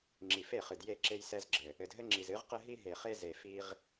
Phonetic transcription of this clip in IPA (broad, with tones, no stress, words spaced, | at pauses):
ŋ͡ǁi˨fe˦˨χɨ˨dje˦˨ ǁe˦jsɛ˦z ɡ͡ǁɘ˨ | ɘ˨dɦɘ˦ŋ͡ǁi˨z ɨ˨˦ʁqɘ˦ɦi˦ ɦe˨χe˦ ze˨fi˦ʁ